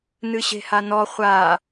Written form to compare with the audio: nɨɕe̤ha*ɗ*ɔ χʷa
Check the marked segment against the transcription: incorrect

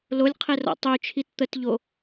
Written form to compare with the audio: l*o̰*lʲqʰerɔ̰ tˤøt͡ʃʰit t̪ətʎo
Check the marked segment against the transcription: incorrect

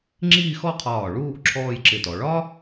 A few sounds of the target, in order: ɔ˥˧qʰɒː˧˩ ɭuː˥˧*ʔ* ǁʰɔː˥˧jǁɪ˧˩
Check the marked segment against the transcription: correct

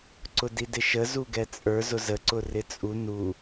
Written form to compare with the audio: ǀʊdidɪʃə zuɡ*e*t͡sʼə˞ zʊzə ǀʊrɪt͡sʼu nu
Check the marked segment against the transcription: incorrect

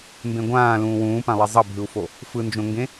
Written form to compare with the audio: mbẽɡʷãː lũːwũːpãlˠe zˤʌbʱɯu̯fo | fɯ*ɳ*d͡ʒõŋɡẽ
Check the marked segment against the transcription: incorrect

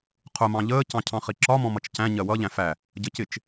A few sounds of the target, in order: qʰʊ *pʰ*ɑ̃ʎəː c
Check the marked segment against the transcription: incorrect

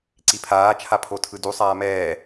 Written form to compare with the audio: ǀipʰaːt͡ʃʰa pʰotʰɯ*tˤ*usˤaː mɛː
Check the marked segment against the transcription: incorrect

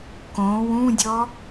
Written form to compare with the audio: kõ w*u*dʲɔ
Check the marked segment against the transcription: incorrect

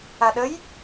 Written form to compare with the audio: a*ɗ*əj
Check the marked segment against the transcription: correct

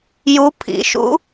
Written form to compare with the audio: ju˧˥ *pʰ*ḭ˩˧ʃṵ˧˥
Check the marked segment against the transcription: correct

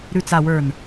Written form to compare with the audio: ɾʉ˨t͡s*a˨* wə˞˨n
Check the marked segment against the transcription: correct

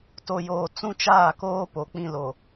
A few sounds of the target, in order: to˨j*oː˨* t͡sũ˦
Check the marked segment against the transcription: correct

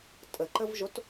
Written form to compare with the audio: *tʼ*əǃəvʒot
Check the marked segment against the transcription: correct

